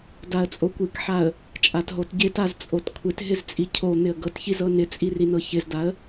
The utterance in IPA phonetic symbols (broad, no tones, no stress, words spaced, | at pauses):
daə̯t͡sʼokʷikħaə̯ | t͡ʃʼatɦotɟɪtaz t͡sʼotkʷʰɪtɦɪz t͡sʼicʰon̪ɪə̯ ɡɤtçiz ɤnɪt͡sʼi rinɤçɪzdaə̯